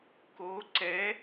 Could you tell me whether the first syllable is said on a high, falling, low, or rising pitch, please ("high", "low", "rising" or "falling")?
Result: rising